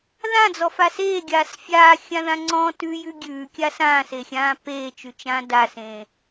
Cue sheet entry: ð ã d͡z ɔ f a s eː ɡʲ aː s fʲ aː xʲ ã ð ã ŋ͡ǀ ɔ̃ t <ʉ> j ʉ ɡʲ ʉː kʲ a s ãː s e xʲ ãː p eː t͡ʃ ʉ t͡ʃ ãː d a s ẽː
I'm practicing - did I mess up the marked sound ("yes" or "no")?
no